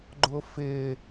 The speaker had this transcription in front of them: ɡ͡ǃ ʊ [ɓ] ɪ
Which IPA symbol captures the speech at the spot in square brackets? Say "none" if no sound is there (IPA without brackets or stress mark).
f